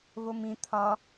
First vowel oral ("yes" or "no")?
yes